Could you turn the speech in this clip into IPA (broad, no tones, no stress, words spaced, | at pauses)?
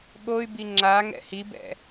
ɠoy̯bi ŋ͡ǁa ŋɛ̰hibɛ̰